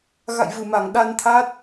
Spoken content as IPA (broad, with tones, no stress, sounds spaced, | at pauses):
ɣ a̰˧˨ j v ɨ˧˩ m a˧˩ ŋ ɗ a˧ n t̪ʰ a˦˥ t̚